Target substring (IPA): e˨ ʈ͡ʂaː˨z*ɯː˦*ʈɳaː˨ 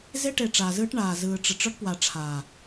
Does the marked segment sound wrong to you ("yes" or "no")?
no